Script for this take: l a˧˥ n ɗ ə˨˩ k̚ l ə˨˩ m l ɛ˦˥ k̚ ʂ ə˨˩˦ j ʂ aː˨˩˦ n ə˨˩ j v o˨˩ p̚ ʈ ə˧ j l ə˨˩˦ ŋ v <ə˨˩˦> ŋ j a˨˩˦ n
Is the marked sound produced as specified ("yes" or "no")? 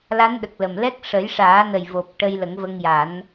no